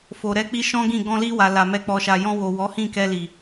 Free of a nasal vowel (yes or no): no